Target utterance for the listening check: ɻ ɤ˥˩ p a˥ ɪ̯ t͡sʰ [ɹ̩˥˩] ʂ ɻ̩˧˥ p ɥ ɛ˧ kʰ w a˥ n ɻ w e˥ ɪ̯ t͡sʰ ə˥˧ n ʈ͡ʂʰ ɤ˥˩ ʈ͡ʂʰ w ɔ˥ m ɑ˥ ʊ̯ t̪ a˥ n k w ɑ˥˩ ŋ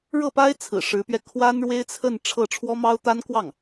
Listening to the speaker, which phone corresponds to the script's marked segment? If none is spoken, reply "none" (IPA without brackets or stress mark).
ɹ̩˨˩